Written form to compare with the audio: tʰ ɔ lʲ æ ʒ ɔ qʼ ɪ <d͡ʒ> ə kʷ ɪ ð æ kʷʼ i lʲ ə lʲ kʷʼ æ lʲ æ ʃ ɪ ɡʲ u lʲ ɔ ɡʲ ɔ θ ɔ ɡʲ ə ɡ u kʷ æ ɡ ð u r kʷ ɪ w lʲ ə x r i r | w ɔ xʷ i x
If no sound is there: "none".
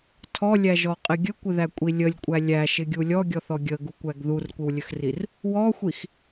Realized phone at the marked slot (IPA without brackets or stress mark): ɡʲ